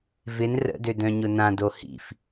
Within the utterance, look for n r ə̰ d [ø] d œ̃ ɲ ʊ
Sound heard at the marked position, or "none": ø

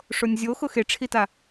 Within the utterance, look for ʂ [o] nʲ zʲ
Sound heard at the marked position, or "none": o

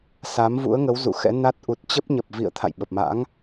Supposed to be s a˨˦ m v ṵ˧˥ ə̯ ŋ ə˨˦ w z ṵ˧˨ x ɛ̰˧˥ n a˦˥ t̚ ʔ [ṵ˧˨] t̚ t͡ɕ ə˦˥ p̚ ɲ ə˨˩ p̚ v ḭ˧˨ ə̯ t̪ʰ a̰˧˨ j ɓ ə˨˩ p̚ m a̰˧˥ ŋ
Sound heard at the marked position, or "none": u˨˩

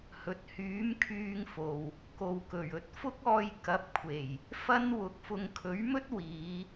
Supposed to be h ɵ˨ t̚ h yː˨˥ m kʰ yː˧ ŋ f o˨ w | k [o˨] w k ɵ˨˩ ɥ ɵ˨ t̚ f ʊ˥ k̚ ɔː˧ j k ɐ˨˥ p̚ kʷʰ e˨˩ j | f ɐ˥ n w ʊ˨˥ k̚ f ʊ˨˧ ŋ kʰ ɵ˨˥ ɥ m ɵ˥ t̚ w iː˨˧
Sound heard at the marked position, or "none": o˨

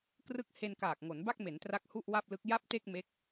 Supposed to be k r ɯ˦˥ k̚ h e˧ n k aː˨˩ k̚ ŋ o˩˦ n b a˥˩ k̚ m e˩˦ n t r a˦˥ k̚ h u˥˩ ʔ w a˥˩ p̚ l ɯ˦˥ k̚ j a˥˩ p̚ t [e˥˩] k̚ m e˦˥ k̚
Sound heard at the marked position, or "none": e˥˩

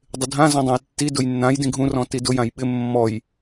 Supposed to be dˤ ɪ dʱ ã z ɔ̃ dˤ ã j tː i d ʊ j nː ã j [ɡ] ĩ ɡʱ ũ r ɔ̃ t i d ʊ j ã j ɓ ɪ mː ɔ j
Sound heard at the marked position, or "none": d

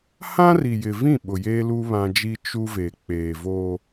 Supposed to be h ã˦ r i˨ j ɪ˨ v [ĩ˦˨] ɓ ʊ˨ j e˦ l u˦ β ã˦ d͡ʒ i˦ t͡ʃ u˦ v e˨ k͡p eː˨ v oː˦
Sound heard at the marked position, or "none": ĩ˦˨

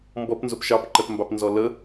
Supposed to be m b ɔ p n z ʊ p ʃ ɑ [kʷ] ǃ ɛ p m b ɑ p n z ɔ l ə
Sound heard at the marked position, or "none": p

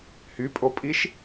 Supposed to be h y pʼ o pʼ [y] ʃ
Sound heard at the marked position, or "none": i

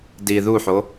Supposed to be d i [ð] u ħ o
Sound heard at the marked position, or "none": ð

